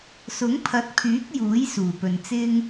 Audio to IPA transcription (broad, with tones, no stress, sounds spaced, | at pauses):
s ʊ˨˥ ŋ pʰ ɐ˨˥ t̚ pʰ yː˨˥ k̚ j uː˨˥ j s uː˨˩ p ɵ˨ n t͡s ɪ˥ ŋ